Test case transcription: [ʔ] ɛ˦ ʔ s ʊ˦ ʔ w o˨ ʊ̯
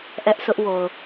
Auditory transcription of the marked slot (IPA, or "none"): ʔ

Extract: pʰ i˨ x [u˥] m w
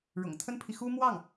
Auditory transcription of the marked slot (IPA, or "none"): u˥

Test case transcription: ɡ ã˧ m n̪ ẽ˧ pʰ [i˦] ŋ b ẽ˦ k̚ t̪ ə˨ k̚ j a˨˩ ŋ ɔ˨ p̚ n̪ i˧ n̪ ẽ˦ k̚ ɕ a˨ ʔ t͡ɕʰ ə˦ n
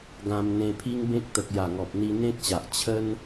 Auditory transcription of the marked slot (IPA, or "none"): i˦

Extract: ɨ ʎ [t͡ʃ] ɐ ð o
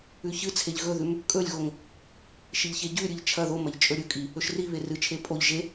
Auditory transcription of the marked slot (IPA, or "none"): t͡ʃʰ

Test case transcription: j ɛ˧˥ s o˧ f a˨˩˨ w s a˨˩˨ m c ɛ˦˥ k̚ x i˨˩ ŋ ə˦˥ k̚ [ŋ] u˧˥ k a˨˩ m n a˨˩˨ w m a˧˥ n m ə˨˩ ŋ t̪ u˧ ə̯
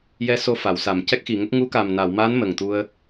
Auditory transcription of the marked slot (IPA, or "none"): ŋ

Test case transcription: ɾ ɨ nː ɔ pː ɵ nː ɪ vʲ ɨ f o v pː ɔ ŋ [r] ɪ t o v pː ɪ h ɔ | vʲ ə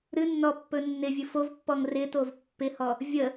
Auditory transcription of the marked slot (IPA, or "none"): r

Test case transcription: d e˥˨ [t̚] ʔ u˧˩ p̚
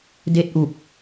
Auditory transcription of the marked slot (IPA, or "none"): t̚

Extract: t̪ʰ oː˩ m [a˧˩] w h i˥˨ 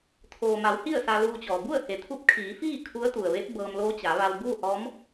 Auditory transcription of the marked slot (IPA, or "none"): a˩˧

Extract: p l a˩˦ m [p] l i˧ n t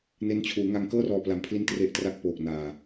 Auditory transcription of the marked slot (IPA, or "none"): pʰ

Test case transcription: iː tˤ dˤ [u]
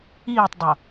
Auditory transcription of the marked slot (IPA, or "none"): o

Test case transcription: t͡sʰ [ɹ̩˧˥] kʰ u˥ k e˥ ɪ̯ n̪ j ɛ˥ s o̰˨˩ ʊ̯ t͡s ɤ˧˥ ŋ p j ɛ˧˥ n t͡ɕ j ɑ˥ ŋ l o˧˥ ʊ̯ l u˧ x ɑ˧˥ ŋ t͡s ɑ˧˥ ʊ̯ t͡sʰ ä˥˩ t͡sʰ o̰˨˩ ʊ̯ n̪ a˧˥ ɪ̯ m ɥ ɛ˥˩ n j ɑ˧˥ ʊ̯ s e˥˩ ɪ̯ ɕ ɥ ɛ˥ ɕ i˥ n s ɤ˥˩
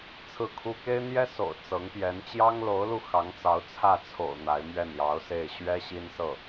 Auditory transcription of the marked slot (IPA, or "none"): ɹ̩˥˩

